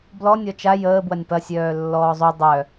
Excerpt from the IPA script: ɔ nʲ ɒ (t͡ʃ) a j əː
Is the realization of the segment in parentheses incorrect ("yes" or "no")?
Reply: no